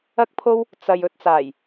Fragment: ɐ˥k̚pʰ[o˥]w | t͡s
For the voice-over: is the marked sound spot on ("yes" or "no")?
yes